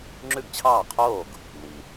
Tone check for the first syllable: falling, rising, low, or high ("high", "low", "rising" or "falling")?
falling